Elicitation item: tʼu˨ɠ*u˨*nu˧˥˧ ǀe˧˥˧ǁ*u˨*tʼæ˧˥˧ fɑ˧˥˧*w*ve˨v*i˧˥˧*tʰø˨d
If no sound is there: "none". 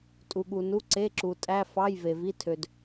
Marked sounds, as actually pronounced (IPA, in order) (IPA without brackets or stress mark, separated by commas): u˨, u˨, j, i˧˥˧